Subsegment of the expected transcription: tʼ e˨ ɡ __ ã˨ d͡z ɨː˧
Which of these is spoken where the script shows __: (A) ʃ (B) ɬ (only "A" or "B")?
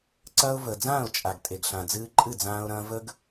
B